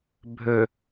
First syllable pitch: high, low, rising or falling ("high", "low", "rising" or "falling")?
low